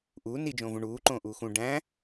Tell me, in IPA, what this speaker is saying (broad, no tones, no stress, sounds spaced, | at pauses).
ʔ uː n i d͡ʒ õː v ũ ɳ uː ǃ õː ʔ uː x ũ ɖ æ̃